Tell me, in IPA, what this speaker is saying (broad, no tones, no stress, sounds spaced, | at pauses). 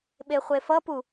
ɓ e χʷ e f ʌ p u